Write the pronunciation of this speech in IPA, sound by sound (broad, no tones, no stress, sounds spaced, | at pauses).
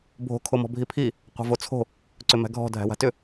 bʱ o̤ kʰ o m ɔ̤ bʱ i pʰ i | qʷ a̤ v o t͡sʰ o̤ | ǀ ʏ m æ̤ ɡʱ ɔ̤ dʱ æ̤ w a̤ t ʏ